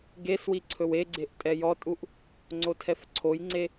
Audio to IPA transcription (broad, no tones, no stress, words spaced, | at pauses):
ɡeswi ǀʰɵweɡ͡ǀeʔ tʼɛjɔtʼuʔ | ŋ͡ǀotʰɛfǀʰojŋ͡ǀe